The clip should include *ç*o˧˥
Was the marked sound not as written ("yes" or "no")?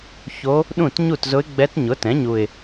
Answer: no